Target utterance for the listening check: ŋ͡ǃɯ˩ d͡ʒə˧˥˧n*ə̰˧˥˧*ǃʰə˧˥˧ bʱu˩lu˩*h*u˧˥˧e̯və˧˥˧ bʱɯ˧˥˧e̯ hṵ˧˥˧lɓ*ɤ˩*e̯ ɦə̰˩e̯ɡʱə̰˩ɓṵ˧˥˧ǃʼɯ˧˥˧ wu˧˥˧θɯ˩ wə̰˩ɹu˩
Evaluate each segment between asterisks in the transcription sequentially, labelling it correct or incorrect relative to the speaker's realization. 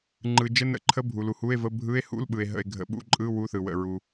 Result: correct, correct, incorrect: ɯ˩

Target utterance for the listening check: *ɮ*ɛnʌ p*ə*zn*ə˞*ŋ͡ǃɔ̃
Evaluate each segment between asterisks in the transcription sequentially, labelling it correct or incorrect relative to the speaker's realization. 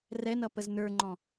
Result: incorrect: r, correct, correct

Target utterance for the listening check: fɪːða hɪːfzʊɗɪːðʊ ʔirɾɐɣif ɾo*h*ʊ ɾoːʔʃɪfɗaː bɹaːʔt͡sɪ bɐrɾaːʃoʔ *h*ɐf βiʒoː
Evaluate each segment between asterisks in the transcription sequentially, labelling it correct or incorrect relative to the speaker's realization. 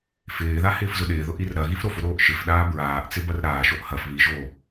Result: incorrect: f, correct

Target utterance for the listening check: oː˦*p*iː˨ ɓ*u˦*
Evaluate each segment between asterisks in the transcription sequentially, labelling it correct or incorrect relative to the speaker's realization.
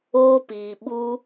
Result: correct, correct

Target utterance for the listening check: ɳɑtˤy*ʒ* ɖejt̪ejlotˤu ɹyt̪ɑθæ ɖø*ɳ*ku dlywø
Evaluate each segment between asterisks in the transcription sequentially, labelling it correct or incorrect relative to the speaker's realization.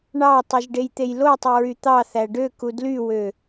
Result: correct, incorrect: none

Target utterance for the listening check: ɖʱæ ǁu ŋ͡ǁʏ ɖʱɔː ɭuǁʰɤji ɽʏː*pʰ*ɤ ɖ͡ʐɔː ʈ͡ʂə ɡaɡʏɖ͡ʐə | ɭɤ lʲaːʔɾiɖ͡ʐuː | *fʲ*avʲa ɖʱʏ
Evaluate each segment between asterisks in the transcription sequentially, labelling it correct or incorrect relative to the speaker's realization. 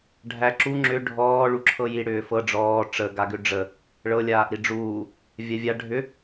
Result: incorrect: f, incorrect: vʲ

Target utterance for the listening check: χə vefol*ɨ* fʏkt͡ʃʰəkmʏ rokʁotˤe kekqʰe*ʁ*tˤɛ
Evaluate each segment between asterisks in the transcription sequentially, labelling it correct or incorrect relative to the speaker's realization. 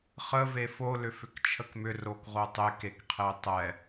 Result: incorrect: ʏ, incorrect: none

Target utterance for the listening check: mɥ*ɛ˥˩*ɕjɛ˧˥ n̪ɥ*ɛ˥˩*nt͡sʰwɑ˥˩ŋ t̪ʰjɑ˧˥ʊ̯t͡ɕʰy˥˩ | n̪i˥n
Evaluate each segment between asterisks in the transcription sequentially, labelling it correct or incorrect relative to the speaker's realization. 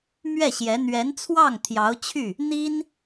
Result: correct, incorrect: ɛ˧˥

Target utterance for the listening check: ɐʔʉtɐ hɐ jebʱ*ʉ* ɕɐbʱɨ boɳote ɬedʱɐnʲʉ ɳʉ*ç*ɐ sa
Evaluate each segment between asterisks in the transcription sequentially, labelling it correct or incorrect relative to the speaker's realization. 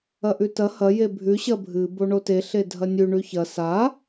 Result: correct, correct

